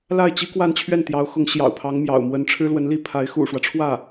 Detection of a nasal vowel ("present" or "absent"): absent